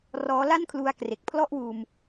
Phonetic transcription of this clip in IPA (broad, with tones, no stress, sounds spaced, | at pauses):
r ɔː˦˥ l a˥˩ n kʰ l u˧ a̯ k r e˨˩ k̚ pʰ l ɔ˥˩ ʔ w uː˧ m